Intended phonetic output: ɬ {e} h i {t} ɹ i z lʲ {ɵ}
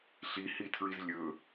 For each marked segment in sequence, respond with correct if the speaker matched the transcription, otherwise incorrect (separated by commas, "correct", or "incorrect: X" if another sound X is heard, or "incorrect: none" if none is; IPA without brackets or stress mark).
incorrect: i, incorrect: tʰ, correct